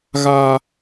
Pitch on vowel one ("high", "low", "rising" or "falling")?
low